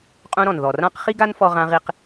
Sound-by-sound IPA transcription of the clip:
qʼ ũ˧ ɾ ɔ̃˩ n ð ɔ˩ r ã˥ q χ i˥ ɡ a˥ n f ɔ˧ ʁ ã˧ ʁ i˧ q

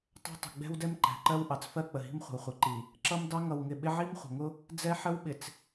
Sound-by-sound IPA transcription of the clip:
tˤ æ̤˦ tˤ ə̤˨ ɡ͡b ɛ̤˦ w d ɛ˦ m ǃ æ̤˨ ǃ ɜ˦ w ʔ ɑ˨ t͡s f ɜ˦ k͡p ə˨ ɦ i̤˦ m χʷ ə̤˨ w χʷ ɪ˨ ǃ i˨ | ǁ ʌ˦ m d ɑ˦ ŋ ʌ˨ w ŋ ɪ˨ ɓ ɪ˦ ʕ i˦ m χʷ ə̤˨ ŋ ʊ˦ | d͡z ɛ˦ ħ ə˦ w ɓ ɪ˨ t͡s

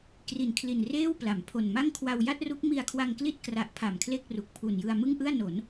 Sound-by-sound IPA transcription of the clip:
k r i˨˩ n kʰ l i˨˩ n r eː˥˩ w p l a˩˦ m pʰ o˨˩ n m a˥˩ ŋ kʰ w a˧ w j a˥˩ t̚ r u˦˥ k̚ m i˧ a̯ kʰ w a˧ ŋ k l i˥˩ t̚ k r a˨˩ ʔ pʰ a˨˩ m kʰ l e˥˩ k̚ r u˨˩ k̚ pʰ u˨˩ n j ɯ˧ a̯ m ɯ˥˩ ŋ ʔ ɯ˥˩ a̯ n o˩˦ n

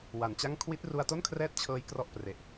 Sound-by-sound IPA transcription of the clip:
w a˨˩ n t͡ɕ a˥˩ ŋ kʰ w i˦˥ t̚ r u˧ a̯ t o˥˩ n kʰ r ɛː˥˩ t̚ t͡ɕʰ ɤː˦˥ j k r ɔ˥˩ ʔ p r e˨˩ ʔ

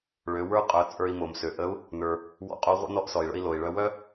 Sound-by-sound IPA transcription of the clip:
ɭ ø˩˧ w ə˞˥ qʼ œ˩˧ t͡sʼ ə˞˧ i̯ m o˩ m s ø˩ ʔ ə˧˥ u̯ | n ə˞˩ | w ɔ̰˧˥ qʼ o˧˥ ʁʷ ə̰˥ n ɔ˧˥ ʔ s ɔ˩ i̯ ɭ ə̰˧ i̯ l o˩ i̯ ɭ œ˧ w œ˥

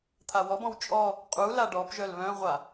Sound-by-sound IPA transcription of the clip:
t̪ʰ a w ɔ b ɔ̃ w t͡ʃʼ ɔ | qʼ u l a ɖ ɔ p ʒ œ l β œ̃ ʁʷ a

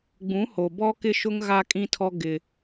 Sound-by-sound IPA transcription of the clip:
ɡ͡b ũ˨˦ h o˨ b ɔ˦ k ɪ˦ ʃ ʊ˦ ŋ ɣ a˦ kʼ ĩ˦ tʰ ɔ˦ ɡ ɪ˦

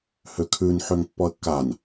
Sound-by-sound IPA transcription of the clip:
h ø kʰ ʉ n ħ ø ŋ pː ɔ ə̯ kː a n

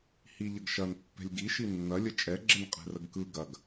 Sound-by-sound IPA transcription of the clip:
h i ʎ ə ɡ ʃ ɐ n pː ɛ̤ lʲ ɡ i ʃ i nː ɐ lʲ ə t͡ʃʼ ɛ ɡ͡ǁ ə n qʼ ɛ̤ r ə ɡ k ɯ ɡ ɐ ɡ

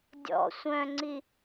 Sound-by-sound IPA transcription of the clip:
dʲ ɔ̰ sʷ œ̃ ŋ͡ǀ i

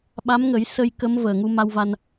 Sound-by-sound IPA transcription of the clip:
ɓ a˧˥ m ŋ ə˨˩˦ j s ə˧ j k ə˧˥ m v əː˨˩ ŋ u˧ m a˧ w v a˧ n

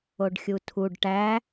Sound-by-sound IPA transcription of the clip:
o ɖ xʲ u tʰ u ɖ ʈ æ

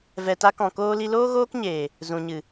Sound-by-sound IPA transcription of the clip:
v ɛ˨ t a˧ k ɔ̃˨ k oː˧ l i˧ l oː˦ ɣ oː˦ k ɲ eː˨ | z ũ˨ ɲ ɨ˨

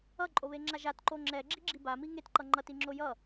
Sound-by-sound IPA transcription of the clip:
ʌ ǃʼ o β e ŋ͡ǁ a ʒ a t ǃ o ŋ͡ǁ ɛ ɡ͡ǁ i ɡ͡ǁ i b a m i ŋ e t ǃ ʌ ŋ͡ǃ ʌ t i ŋ͡ǁ o j ʌ

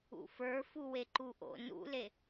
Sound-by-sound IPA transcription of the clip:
ṵ f ə˞ f u w e ǃ u ʔ o̰ n ṵ l e

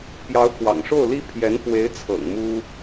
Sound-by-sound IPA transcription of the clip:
p j ɑ˧˥ ʊ̯ k w ɑ̰˨˩ ŋ ʂ o˥˩ ʊ̯ l i˥ pʰ j ɛ˧˥ n f w e˧˥ ɪ̯ t͡sʰ ɤ̰˨˩ ŋ m u˥

